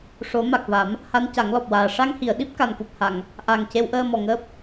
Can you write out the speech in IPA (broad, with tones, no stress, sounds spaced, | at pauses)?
ʂ o˨˩˦ m a˨˩ k̚ v a˨˩˦ m | h a˧˥ n c a˨˩˦ ŋ l ɔ˨˩ p̚ w aː˨˩ ʂ a˧ ŋ h i˨˩˨ ə̯ ɗ i˦˥ p̚ k a˨˩ n k u˨˩ p̚ h a˨˩˨ ŋ | ʔ a˨˩ ŋ c e˧˥ w ʔ əː˧ m ɔ˨˩ ŋ əː˦˥ p̚